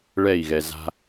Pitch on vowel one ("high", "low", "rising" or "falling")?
falling